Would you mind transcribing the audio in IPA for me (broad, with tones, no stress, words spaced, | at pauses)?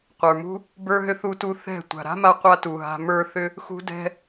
qʷə˞˨mṳ˦ | bə˞˦ɦʏ˦ θu˦tu˦ θɛ̤˦˨ tʷa̤˨ɾa̤˦ma˧ qʷa˦tu˨ɦa̤˧ mə˞˧ θʏ˦ | xṳ˦dɛ̤˦